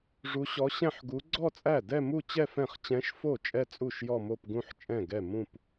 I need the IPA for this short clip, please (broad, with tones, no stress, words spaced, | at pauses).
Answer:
ʐu˧˥ɕɔ˧˥ɕɛ̃˥˧ħɡu˧˥ ɡ͡ǀɔ˥˧t͡sʼæ˥˩dɛ˥˧ mu˥˧t͡ɕɛ˥˧fɛ̃˥˩χ t͡ɕɛ̃˧˥ʃfo˥˩ t͡ʃʼɛ˥˧t͡sʼu˥˩ʃ jɔ˥˧mo˥˧p ɡũ˥˧ħt͡ʃʼɛ̃˥˩ɡɛ˥˩ mũ˥˧p